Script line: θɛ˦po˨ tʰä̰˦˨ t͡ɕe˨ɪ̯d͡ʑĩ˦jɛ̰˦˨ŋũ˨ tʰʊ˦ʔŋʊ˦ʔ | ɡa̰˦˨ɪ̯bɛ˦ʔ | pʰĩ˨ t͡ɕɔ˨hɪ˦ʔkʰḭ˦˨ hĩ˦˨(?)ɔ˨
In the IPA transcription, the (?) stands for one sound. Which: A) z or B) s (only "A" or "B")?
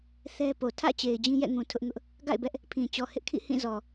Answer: A